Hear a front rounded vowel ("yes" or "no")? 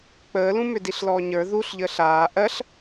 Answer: yes